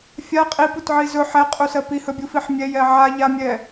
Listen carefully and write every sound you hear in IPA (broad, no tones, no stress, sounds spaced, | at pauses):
fʲ a qʼ i p u t ʕ i z ɵ ħ ɛ qʼ u s ɜ p i h ɵ bʲ u f i ħ mʲ ɛ j ɛ ʕ a ʎ a mʲ ɛ